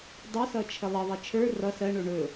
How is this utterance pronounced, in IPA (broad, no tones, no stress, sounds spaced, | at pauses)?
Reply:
dˤ ɵ s ʌ t͡ʃʰ ə lˠ ə ðˤ ə t͡ʃʰ ə˞ r ʌ s ɜ ɳ o ɳ ɵ